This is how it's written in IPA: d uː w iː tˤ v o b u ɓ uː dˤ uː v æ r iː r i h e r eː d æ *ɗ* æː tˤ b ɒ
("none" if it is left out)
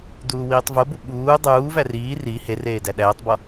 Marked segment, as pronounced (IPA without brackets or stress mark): ɗ